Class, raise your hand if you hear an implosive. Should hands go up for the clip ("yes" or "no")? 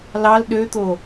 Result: yes